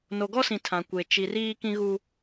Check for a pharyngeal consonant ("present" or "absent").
absent